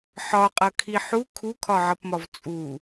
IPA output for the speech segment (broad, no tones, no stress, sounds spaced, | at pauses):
ħ ɒ qʼ ʌ kʰ i ħ u kʰ u kʰ ɒ ʕ ʌ p m ɒ v t͡sʼ u